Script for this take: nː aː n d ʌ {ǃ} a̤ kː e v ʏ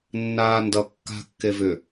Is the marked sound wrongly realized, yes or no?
yes